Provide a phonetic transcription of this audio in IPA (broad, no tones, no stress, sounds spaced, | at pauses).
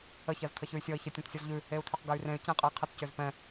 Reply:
ə ç ɜ z tʰ ə ç ʉ y̯ sʲ ɔ i̯ ç ɜ tʲ ɔ̃ t sʲ ɔ z ʎ ʉ | e u̯ tʰ ø q ɡ ɜ y̯ r ẽ y̯ c ẽ qʼ ə i̯ qʰ ə t c ø z p ɛ̃